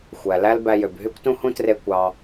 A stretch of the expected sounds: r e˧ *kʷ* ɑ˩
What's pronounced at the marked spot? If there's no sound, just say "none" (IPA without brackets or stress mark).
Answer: kʷ